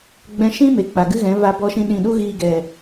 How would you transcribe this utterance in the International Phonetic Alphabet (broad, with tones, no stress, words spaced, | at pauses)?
ɡ͡bɛ̃˧ʃĩ˦ me˨k͡pa˨ɡɨ˦ɣɛ̃˨˦ va˦bɔ˦ʃĩ˦ɗĩ˦˨ ɗu˦ɣiː˧ɡɛ˨